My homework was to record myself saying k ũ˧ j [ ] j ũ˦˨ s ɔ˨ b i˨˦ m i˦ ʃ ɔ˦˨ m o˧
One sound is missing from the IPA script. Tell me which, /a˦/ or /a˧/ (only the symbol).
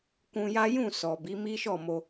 a˦